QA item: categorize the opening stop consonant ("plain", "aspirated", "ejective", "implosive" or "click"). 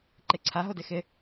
click